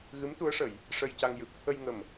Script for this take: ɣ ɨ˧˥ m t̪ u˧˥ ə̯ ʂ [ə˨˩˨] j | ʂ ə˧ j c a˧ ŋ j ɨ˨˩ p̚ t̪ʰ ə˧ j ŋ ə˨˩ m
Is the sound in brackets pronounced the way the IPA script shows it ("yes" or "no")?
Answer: yes